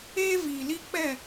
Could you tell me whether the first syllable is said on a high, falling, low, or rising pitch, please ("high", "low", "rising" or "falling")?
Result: high